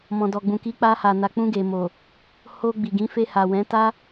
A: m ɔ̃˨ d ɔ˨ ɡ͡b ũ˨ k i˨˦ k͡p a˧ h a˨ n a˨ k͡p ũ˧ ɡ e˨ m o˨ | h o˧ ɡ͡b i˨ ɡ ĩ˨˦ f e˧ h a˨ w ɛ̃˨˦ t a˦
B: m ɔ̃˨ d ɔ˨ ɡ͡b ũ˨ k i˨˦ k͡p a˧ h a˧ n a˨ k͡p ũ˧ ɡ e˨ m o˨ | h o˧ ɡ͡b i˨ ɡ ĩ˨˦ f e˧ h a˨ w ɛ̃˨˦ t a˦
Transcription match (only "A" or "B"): A